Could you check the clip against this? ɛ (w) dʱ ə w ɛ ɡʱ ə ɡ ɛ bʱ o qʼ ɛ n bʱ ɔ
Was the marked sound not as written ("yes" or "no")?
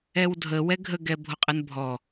no